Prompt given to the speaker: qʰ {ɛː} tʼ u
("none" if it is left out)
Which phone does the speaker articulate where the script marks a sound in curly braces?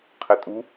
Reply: ɛ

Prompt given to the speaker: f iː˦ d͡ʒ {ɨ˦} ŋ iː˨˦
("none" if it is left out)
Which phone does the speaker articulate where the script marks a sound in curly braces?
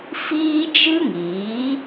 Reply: ɨ˦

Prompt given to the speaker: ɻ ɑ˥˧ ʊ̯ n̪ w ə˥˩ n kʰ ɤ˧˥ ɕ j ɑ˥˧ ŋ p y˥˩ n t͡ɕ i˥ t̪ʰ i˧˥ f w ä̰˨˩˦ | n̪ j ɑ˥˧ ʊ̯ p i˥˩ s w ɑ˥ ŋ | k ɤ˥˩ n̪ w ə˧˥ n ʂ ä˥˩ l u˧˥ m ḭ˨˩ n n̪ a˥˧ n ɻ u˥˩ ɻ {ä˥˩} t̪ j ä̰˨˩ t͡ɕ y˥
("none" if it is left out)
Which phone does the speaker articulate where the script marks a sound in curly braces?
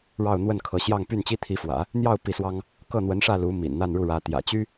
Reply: ä˧˥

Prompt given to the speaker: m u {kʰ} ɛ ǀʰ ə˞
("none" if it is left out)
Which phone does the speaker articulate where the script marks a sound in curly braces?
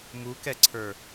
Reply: k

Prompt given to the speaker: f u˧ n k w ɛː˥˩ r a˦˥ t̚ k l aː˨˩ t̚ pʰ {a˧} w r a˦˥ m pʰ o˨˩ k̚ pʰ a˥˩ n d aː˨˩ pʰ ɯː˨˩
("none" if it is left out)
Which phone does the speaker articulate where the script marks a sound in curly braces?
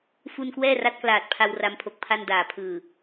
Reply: a˧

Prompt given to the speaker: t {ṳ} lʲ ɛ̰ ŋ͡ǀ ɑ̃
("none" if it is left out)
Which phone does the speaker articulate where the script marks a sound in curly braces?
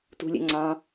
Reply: ṳ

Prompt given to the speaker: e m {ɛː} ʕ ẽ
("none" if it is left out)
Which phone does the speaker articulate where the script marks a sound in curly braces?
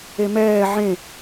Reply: ɛː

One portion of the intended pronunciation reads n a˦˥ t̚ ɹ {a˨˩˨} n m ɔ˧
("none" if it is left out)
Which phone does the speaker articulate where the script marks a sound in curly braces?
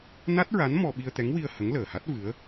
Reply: a˧˥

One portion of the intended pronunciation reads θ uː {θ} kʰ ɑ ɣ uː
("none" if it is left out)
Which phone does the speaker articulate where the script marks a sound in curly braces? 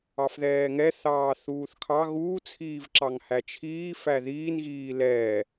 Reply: θ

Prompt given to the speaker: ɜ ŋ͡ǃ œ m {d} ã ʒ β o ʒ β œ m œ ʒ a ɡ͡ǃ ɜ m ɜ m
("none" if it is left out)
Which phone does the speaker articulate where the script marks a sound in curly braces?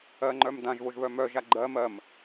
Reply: d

